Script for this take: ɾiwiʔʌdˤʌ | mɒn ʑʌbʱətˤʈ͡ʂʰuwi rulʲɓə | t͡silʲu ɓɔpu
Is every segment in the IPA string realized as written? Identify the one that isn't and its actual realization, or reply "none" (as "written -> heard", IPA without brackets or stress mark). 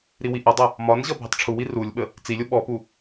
none